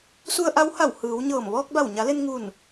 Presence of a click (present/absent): absent